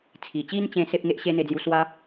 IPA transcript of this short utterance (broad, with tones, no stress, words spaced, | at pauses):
t͡sʰi˨˩t͡ɕi˦nt͡ɕẽ˧ se˦p̚ŋe˦ʔ ɕe˦n̪e˧d͡zju˧ swa˦